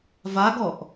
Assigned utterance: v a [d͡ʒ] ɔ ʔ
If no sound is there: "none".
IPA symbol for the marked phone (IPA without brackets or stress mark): ɡ